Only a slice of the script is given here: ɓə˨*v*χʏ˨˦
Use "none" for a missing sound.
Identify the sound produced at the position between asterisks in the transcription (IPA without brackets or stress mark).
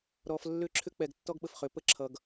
f